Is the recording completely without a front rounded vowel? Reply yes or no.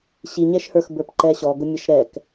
yes